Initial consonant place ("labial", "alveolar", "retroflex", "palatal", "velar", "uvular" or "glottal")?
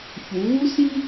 palatal